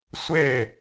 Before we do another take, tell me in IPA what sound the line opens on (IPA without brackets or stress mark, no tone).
sʷ